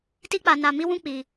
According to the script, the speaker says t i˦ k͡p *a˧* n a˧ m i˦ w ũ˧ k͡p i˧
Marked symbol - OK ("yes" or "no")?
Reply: yes